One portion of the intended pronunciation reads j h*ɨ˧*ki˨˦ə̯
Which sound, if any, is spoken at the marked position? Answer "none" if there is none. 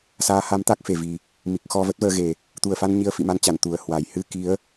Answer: ɨ˧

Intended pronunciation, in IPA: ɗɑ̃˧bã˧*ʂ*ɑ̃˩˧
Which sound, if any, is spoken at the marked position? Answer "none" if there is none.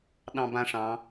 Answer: ʂ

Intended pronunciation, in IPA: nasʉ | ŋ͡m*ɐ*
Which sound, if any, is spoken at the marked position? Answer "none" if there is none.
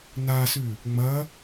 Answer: ɐ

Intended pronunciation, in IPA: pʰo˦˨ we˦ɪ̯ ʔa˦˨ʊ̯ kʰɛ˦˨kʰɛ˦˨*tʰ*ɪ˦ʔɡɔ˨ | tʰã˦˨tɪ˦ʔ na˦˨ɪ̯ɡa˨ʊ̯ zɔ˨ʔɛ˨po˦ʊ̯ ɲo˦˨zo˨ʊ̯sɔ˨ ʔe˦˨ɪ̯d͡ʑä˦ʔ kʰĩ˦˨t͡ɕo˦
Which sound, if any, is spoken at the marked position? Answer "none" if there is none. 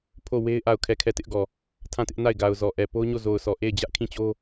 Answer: t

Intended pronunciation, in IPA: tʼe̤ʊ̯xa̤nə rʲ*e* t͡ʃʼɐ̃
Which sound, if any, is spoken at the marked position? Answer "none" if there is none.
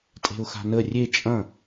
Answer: e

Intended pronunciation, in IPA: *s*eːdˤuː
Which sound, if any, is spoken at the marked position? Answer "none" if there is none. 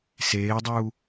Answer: s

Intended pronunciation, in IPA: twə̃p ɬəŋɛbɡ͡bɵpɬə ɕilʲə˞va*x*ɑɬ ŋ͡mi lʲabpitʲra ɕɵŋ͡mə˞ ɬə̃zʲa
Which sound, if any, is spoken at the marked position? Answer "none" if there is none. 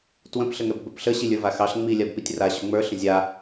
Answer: x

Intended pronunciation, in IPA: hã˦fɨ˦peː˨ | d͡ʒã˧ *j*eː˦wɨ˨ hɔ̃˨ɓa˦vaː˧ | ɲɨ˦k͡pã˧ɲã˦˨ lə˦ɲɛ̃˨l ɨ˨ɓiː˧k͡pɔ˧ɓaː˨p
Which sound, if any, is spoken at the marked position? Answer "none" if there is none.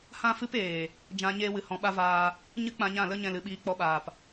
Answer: ɲ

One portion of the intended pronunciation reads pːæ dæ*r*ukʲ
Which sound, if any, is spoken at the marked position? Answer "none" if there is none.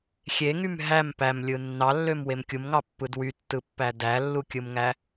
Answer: lː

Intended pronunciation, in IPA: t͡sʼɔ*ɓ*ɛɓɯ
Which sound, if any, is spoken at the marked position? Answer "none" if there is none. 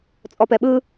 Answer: p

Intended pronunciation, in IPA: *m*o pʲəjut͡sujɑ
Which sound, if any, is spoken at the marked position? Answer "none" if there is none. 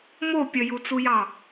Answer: m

